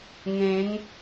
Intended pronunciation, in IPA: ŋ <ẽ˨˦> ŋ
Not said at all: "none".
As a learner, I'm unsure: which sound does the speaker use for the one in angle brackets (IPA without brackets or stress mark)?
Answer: ẽ˨˦